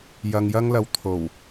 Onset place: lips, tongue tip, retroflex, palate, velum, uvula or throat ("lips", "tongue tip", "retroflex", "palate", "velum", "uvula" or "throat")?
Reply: palate